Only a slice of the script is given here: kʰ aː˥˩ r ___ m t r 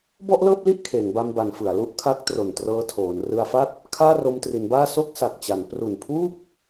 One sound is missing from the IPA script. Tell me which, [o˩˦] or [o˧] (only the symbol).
o˧